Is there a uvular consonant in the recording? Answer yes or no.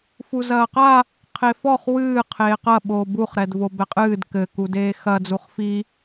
yes